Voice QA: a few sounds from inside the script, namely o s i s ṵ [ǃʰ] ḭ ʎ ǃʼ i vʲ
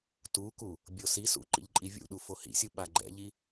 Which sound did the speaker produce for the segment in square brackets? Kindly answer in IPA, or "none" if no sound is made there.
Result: ǃ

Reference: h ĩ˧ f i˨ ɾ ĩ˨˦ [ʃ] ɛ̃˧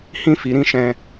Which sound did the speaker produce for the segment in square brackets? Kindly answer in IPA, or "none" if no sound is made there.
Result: ʃ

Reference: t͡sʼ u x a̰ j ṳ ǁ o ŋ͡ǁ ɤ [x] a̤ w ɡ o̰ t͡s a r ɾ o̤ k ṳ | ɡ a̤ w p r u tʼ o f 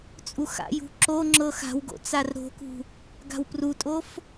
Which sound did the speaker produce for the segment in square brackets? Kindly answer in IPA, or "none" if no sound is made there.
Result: x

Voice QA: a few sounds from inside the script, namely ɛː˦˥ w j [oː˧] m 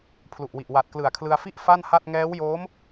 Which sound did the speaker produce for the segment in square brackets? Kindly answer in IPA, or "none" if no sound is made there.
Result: oː˦˥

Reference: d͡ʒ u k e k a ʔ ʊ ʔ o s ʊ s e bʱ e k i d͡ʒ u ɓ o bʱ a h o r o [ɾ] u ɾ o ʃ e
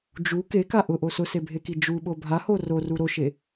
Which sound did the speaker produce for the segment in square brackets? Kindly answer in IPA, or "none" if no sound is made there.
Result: r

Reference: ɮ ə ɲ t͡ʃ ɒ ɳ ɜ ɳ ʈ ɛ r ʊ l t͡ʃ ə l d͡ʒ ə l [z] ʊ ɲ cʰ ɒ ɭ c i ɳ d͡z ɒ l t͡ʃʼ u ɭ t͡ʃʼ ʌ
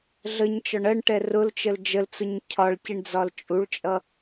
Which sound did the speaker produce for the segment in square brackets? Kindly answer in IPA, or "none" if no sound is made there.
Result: t͡s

